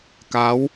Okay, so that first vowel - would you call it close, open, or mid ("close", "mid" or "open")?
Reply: open